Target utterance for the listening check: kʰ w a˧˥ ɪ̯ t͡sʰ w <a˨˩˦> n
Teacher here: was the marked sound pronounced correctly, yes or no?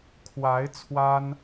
no